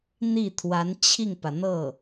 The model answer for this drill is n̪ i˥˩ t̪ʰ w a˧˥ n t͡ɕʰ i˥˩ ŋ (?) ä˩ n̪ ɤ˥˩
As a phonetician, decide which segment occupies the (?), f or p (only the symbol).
p